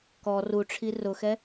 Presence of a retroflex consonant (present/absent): present